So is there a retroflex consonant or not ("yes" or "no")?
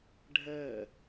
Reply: yes